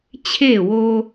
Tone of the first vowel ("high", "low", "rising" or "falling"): falling